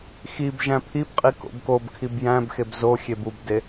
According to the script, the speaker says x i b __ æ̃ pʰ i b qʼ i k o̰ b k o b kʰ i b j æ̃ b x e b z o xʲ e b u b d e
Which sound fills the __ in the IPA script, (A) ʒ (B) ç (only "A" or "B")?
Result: A